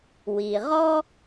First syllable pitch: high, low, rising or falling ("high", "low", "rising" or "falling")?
low